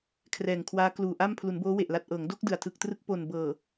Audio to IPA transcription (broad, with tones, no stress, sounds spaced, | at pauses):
kʰ r ɛː˨˩ ŋ kʰ w aː˦˥ k l uː˨˩ ʔ a˥˩ m pʰ l u˩˦ n b oː˦˥ w e˨˩ ʔ l a˨˩ t̚ ʔ ɤː˩˦ ŋ d o˦˥ k̚ d ɯ˨˩ a̯ tʰ ɯ˨˩ k̚ t r ɯ˦˥ k̚ p o˨˩ n b ɤː˨˩